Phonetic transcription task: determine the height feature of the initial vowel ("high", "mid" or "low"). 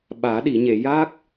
low